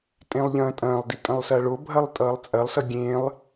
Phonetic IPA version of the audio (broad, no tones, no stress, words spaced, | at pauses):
tʼẽlˠʎɐ̃ːtʼɐ̃ːlˠdi tʼɐ̃lˠsɐːɭo bʱɐlˠtʼʌːlˠt͡sʼɐlˠsʌ ɡʲẽlˠ